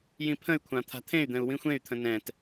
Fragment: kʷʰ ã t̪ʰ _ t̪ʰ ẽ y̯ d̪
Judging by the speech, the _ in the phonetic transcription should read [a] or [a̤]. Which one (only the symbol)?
a̤